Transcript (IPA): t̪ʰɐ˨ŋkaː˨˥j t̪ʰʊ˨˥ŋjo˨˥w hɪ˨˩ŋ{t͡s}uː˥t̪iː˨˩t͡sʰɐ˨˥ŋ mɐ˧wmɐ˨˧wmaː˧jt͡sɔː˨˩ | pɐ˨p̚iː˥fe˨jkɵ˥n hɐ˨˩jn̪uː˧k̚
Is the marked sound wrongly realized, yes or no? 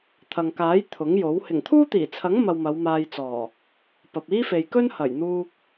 yes